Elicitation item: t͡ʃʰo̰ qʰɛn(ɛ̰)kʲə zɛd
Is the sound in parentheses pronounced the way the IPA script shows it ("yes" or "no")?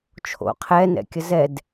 yes